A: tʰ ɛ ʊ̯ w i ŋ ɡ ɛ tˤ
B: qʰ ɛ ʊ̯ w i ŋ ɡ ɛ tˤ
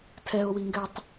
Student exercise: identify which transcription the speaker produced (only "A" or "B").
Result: A